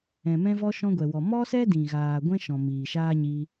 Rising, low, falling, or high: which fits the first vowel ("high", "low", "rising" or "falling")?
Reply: low